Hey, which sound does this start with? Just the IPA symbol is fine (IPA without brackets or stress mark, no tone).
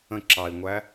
ə̃